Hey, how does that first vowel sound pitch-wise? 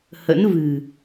rising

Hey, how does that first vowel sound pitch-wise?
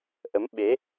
rising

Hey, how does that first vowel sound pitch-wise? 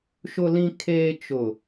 low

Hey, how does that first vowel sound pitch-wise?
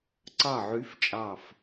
falling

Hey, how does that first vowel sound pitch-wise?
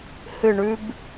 falling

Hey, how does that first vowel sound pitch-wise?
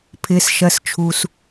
low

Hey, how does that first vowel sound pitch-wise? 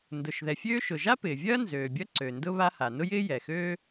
low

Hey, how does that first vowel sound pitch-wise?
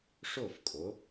falling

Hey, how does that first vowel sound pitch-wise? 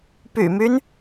low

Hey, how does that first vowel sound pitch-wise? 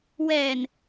low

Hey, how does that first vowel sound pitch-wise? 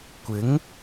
rising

